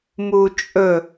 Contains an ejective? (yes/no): yes